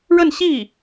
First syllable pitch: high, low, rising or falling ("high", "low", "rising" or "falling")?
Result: falling